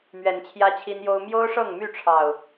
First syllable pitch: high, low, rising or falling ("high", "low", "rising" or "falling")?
rising